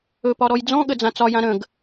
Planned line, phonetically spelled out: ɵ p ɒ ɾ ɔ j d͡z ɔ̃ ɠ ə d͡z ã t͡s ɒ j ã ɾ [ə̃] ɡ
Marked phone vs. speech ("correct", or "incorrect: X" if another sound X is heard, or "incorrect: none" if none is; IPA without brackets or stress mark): correct